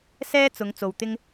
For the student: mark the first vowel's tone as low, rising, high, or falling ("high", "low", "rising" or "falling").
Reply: high